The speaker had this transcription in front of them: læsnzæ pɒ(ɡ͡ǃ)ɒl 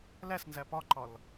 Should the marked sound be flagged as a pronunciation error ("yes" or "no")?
yes